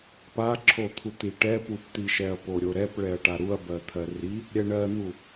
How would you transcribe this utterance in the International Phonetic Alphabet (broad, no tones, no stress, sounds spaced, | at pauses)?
p a ǁʰ o t̪ʰ u t̪ i ʈ ɛ p u p t̪ i ʃ ɛ ɐ̯ p o ɾʲ o ɾ ɛ p ɭ ɛ ɐ̯ ʈ a ɾ u ɐ̯ b ɜ t̪ʰ ɜ r i | ɾʲ ɛ ɳ ɜ n̪ u